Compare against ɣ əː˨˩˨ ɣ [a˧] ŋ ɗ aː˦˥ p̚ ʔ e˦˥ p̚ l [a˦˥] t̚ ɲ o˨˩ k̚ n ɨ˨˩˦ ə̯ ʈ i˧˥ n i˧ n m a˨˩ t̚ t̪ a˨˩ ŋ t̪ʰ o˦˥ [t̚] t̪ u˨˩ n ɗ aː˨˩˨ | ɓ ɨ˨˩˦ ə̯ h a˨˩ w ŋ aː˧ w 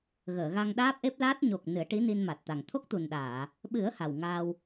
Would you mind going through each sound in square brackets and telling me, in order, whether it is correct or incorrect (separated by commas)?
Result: correct, correct, incorrect